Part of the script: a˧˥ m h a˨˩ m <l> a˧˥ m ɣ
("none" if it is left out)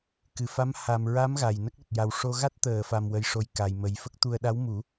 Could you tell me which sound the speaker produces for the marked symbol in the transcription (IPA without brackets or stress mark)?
ɹ